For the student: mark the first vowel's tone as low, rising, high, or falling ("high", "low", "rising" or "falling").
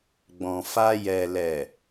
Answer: low